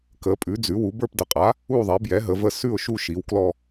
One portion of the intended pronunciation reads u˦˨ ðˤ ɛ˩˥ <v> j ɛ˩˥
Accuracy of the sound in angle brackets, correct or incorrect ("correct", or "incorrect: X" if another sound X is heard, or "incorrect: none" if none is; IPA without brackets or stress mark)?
incorrect: b